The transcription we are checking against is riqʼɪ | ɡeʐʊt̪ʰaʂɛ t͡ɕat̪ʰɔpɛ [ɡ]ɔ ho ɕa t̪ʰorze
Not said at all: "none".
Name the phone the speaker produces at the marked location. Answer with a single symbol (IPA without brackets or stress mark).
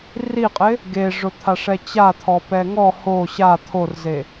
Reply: ŋ